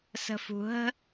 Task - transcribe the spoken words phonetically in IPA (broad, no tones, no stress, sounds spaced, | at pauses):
s ə̤ f ṳ ɦ ə̤